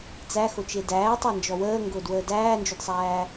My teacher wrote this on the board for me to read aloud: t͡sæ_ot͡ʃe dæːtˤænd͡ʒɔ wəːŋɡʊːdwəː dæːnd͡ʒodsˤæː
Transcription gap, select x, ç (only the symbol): x